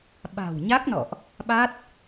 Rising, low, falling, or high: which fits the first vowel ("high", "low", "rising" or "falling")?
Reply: low